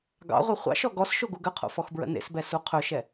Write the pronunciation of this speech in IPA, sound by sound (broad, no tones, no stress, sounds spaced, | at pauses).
ɡ ɑ̰ ʁʷ ɛ χʷ ɑ̰ ʃ ɔ ɡ ɔ s ʃ o ɡ u ɡ ə qʰ o̰ f ɔ x b ɹ ə̰ n ḛ s b ɛ s u qʰ ɵ ʃ ɛ